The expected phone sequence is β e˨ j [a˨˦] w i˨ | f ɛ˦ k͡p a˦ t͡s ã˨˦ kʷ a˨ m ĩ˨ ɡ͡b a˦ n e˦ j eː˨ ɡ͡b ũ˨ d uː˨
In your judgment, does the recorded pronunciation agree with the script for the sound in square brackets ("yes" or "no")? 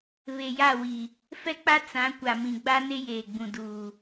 no